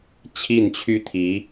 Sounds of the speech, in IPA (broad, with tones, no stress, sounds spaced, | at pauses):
t͡ɕʰ i˥˩ n t͡ɕʰ y˥ t̪ʰ i˧˥